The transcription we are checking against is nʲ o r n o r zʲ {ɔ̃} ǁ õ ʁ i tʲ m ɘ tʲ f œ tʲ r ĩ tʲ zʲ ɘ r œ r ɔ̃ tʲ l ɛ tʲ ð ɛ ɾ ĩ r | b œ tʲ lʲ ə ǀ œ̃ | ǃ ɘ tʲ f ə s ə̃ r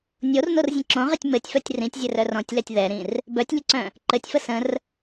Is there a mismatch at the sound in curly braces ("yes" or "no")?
yes